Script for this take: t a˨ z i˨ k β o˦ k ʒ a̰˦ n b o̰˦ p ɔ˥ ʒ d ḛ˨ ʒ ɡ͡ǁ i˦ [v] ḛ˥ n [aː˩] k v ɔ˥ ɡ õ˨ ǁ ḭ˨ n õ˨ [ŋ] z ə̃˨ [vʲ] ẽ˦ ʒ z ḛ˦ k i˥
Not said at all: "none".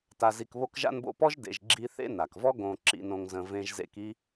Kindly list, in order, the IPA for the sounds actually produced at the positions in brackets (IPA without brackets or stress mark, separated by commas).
θ, a˩, ŋ, v